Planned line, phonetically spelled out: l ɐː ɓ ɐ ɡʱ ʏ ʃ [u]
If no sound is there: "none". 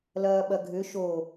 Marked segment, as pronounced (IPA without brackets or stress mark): o